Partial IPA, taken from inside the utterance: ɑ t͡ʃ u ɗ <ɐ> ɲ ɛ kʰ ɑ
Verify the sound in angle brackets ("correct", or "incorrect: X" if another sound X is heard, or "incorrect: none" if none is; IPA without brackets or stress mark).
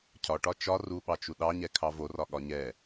incorrect: ɑ